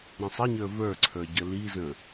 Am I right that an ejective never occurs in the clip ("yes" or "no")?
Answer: yes